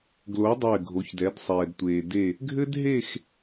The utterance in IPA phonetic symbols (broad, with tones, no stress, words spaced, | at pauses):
ɡlo˨˥dˤɘː˧˩ɡʱo˩˧çdɛ˩˧d sˤɛː˩dtʷeː˩de˧˩ | ɡʱɘ˥dɦe˥˧x